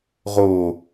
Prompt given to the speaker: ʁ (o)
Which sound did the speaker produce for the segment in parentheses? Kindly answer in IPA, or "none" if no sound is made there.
o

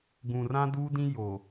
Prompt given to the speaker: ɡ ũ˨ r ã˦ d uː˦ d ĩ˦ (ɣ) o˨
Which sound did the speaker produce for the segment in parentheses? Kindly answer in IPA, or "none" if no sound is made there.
j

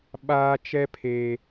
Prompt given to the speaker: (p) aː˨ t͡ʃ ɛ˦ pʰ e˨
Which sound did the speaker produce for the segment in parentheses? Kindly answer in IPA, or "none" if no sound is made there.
ɓ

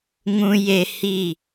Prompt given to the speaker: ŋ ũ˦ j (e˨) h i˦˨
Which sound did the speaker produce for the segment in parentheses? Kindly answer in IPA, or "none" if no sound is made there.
e˦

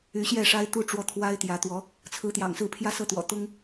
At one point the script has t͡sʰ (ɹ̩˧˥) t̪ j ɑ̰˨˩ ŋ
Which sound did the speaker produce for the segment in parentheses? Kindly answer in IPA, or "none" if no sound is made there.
ɹ̩˧˥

